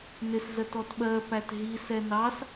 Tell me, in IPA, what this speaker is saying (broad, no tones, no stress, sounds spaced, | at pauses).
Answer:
n ɪ s z ɜ t ɔ t ɓ ɜ p æ t ɦ i s ɛ n ɑ s